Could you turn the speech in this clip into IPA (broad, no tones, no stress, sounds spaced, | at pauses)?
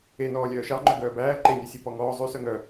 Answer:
e n ɔː lʲ œː ʃ ɑ ŋ͡ǃ œ ɡ œː b æː ǃ e nʲ œ sʲ e p ɔ ŋ ɔː zˤ ʉ s œ ŋ œ